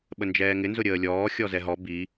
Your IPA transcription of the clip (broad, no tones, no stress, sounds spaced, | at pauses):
ɓ ə n d͡ʒ ɛː ŋ ɪ n z ʊ ɾʲ əː lʲ ɔː xʲ ɔ z ɛ ɦ ɔ b i